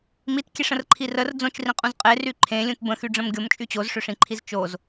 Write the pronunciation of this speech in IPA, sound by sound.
m i t kʲ e ʂ ə̃ r ǃʰ i r ə r d͡z õ t͡ʃ r ĩ qʼ ũ z qʼ e r y ǃʰ ẽ lʲ ũ t b ə̃ x y ɖ͡ʐ ə̃ m ɡʲ o m t͡ʃʼ y t͡ɕ o z ʂ ø ʂ ĩ ǃʰ i z t͡ʃ o z

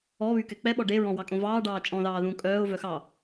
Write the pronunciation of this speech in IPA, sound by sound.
ɔ β y k ɛ k͡p ɛ ɓ ɔ ɖ e ɹ ɔ̃ w ɑ kʼ õ v ɑː ɖ ɑː t͡ʃʼ ɔ̃ ð ɑː ð ũ kʼ œː ʊ̯ v œ x ɑ

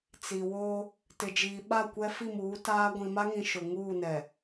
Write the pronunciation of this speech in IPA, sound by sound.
t͡s i˨ w oː˦ | t ɪ˨ d͡ʒ iː˨ ɓ a˦˨ kʷ ɛ˦ f i˦˨ m uː˨˦ t aː˦ ɡʷ ĩ˨ m a˦ ŋ ĩ˨ ʃ ʊ˨ ŋ uː˦˨ n ɛ˨

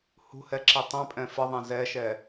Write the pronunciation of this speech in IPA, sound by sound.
h ṳ h ɛ ǁ i tˤ ɛ̃ pʼ ɛ̃ f ə ðˤ ɛ̃ z ɛ ʃ ɛ

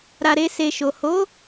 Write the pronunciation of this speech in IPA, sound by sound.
ɾ a˨ ɾ e˧ s e˨ ʃ o˨ h o˨˦

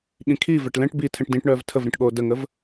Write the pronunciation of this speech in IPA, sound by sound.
ɠ ĩ kʰ i v ɛ ʈ l ɛ̃ ʈ b i tʰ ɛ̃ ʈ d ĩ ʈ ɳ œː v tʰ ə v ɾ ĩ ʈ ɠ oː d ə ŋ ə v

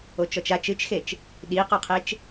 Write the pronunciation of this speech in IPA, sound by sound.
o t͡ʃ ɔ t͡ʃ a t͡ʃ ɨ t͡ʃ x e t͡ʃ | ɗ i q o qʰ e t͡ʃ

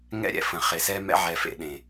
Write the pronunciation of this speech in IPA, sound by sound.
ŋ ɛ̰˦ ɾʲ ɛ̰˨ f ə̃˨ χ e˨ s ɛ˦ m ɛ̰˦ ʕ ɛ˨ f ḛ˨ ɗ ẽ˨

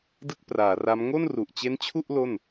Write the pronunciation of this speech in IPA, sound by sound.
d ɯ˥˩ k̚ p r aː˩˦ r a˦˥ m ŋ o˥˩ n r u˨˩ ʔ t͡ɕ e˦˥ n t͡ɕʰ u˥˩ ʔ l o˥˩ n

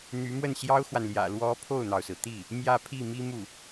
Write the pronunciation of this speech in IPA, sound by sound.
n̪ y˧˥ m w ə˥˩ n ɕ j ɑ˥ ʊ̯ x w a˨ n l j ä̰˨˩ l w ɔ˧˥ pʰ o˥˩ ʊ̯ n̪ ɑ˩ ʊ̯ s ɹ̩˩ t̪ i˥˩ | m j ä˥˧ pʰ i˥˩ m i˥ m u˥˩

